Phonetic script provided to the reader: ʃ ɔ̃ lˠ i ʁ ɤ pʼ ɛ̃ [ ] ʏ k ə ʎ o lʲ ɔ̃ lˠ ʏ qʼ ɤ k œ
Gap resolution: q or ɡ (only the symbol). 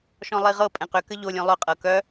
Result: q